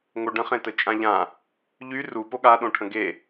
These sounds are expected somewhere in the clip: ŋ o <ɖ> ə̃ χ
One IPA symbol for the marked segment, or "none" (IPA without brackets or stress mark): ɖ